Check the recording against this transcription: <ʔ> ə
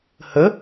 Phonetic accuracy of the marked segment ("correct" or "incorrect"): incorrect